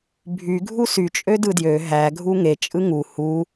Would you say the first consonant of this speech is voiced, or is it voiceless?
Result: voiced